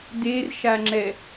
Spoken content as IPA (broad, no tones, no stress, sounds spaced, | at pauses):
d e r ʃ a ŋ͡ǁ ɛ